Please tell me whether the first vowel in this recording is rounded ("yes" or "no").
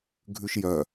yes